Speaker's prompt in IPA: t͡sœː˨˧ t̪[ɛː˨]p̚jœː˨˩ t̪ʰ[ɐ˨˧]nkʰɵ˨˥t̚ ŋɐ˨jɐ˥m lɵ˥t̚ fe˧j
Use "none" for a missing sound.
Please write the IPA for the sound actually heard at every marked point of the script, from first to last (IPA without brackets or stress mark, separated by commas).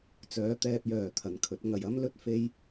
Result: ɛː˨, ɐ˨